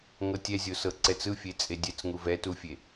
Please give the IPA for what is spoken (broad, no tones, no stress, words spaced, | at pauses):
ŋɤtʲɛzʲo sɤǀɛt͡sɯ fʲet͡sʼedʲɛt͡sŋuv ɛtufʲe